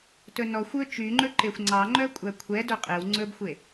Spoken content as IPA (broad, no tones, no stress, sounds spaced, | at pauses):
t ɵ n ɔ xʷ ɵ t͡ʃ y ŋ͡ǃ ɵ ǃ e xʷ ŋ͡ǀ ɑ ŋ͡ǃ œ kʷʼ æ kʷʰ ɛ d œ qʼ e w ŋ͡ǀ ɵ b xʷ e